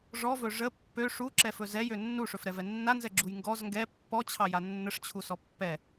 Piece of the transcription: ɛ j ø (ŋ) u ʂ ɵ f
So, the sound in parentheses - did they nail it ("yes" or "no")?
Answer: no